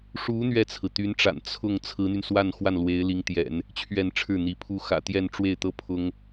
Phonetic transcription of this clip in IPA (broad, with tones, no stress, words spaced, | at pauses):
ʂu˧˥ n̪ɥɛ˥˩t͡sʰɹ̩˩t̪y˧˥nʈ͡ʂa̰˨˩n t͡sʰʊ˥˩ŋ t͡sʰɹ̩˧˥n̪y˧nswa˥˧nxwa˥˩n lwe˧˥ɪ̯li˧˥ŋt̪jɛ̰˨˩˦n | t͡ɕʰɥɛ˥˧nʈ͡ʂʰɻ̩˥˩n̪i˧˥pʰu˥ xä̰˨˩t̪jɛ˥˧nʈ͡ʂwe˥˩ɪ̯t̪ɤ˥ pʰʊ˥ŋ